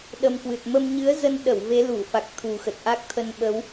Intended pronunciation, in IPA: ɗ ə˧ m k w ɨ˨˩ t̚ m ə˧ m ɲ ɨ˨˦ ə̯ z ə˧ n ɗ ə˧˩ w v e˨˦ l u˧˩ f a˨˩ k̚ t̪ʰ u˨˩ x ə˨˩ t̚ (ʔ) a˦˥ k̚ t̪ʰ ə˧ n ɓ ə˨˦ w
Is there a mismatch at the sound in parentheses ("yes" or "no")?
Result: no